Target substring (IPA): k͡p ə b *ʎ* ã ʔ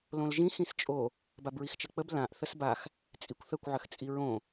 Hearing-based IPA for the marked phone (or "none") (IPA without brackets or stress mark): l